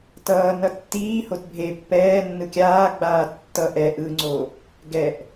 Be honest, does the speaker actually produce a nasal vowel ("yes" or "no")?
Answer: no